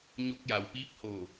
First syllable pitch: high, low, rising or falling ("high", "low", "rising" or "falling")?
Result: rising